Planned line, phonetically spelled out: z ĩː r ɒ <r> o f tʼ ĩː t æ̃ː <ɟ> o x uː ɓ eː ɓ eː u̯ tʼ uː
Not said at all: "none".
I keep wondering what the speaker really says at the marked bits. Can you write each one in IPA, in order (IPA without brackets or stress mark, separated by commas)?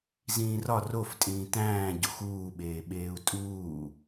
r, ɟ